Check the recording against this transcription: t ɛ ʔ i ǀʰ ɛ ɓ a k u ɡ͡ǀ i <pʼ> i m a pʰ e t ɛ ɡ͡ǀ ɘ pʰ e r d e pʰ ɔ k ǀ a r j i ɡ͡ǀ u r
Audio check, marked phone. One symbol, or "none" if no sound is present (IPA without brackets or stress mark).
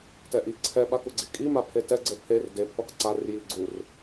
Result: kʼ